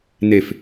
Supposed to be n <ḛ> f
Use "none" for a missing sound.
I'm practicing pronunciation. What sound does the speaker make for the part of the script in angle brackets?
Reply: e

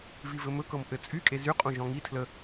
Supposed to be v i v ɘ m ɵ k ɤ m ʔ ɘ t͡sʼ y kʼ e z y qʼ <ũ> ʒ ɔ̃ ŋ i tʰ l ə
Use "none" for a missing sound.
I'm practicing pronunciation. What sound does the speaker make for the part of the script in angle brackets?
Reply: ũ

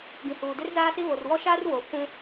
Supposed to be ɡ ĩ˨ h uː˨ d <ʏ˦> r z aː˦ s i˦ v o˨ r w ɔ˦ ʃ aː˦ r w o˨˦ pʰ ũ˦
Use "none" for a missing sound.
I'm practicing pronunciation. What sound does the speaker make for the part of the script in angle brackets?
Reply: ɪ˦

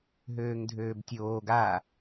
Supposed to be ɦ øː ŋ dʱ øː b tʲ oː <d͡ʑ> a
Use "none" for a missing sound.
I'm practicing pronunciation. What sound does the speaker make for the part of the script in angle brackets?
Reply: ɡ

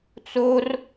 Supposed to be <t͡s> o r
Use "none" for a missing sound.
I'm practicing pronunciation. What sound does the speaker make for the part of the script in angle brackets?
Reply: t͡s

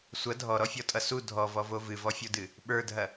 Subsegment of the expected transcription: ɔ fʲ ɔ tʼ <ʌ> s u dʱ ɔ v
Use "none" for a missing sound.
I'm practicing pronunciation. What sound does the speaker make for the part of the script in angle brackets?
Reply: ʌ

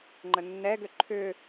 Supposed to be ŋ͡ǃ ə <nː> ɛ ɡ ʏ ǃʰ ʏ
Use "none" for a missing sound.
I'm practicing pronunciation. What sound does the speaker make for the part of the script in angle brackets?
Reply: nː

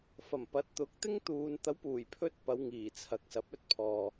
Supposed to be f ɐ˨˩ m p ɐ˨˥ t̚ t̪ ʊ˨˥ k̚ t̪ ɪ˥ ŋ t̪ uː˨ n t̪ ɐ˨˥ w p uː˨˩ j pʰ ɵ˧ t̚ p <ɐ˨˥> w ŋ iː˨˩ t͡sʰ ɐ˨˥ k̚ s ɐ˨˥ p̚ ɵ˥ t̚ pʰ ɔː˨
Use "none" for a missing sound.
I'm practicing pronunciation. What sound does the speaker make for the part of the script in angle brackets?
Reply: ɐ˨˧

